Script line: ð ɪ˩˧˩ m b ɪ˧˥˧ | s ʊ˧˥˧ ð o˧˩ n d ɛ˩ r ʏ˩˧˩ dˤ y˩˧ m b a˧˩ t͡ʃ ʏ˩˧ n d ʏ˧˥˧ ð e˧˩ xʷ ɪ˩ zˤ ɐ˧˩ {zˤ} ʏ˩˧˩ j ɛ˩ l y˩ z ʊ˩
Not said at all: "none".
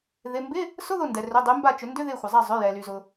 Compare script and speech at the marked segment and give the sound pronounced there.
zˤ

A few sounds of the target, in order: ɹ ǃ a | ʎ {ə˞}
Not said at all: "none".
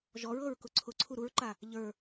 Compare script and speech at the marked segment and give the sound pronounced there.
ə˞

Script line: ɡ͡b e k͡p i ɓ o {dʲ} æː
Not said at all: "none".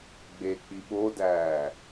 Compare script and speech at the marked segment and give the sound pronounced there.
d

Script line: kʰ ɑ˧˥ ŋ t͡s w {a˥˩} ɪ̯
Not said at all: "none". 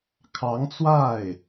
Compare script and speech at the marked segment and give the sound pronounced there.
a˥˩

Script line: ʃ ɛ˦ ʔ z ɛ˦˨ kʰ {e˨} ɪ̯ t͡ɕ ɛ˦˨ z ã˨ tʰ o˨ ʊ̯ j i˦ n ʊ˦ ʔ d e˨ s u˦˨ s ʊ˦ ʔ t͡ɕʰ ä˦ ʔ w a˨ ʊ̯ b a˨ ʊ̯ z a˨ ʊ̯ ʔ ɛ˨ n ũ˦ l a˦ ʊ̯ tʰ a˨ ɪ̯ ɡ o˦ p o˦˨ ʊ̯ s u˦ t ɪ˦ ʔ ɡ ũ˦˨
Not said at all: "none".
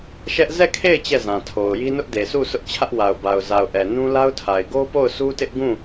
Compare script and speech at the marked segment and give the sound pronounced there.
e˦˨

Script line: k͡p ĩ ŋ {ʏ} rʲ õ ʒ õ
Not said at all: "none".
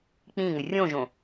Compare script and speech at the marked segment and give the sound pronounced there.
ʏ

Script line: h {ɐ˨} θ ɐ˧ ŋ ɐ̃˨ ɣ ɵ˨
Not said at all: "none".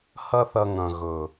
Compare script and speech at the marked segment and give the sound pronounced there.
ɐ˦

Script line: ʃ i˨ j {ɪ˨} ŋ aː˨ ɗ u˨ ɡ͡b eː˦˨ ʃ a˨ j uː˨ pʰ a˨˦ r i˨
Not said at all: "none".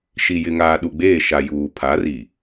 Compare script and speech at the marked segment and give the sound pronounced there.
ɪ˨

